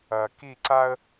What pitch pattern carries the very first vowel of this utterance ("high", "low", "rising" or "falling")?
low